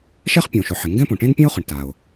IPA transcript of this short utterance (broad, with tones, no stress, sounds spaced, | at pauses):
ʃ ɛ˥ χ pʲ õ˩ ʃ ʊ˩ ħ ɪ˩ ŋ ɡ ɛ̃˥ p õ˩ ʈ ẽ˥ n pʲ ẽ˥ ʊ̯ χ ʊ˩ ɳ t a˩ ʊ̯